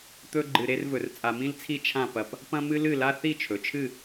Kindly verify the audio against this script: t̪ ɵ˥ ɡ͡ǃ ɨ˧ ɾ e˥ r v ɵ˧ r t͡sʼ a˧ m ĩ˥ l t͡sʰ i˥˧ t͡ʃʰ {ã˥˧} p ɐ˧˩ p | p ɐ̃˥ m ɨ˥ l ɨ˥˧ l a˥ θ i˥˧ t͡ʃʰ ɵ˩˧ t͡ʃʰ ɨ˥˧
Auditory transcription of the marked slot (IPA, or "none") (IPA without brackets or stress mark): ã˥˧